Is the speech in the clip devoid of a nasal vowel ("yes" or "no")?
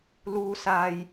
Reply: yes